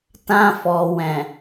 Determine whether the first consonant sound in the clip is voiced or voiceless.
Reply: voiceless